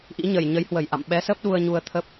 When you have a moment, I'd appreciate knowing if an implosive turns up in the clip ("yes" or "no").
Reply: yes